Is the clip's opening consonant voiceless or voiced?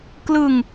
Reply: voiceless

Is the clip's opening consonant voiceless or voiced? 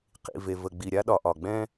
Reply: voiceless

